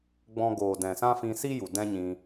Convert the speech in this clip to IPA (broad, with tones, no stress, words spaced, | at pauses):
ɡ͡bɔ̃˧ɡoː˨ dɛ̃˨sã˦fĩ˧ si˦ju˨ dɛ̃˦ɲĩ˧